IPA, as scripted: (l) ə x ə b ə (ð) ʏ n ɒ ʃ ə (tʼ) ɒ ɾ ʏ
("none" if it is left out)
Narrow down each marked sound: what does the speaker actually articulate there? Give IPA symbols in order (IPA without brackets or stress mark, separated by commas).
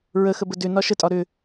ɹ, d, tʼ